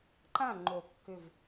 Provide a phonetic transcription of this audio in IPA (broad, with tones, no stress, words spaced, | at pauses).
ǃã˥˩ ŋ͡ǃo˨˩˦kːʏ˧˩v